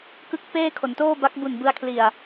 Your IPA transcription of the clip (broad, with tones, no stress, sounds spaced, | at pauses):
k ɯ˥˩ k̚ p eː˥˩ kʰ o˩˦ n t oː˥˩ b a˦˥ k̚ b u˨˩ n b ɯ˧ a̯ kʰ l i˨˩ a̯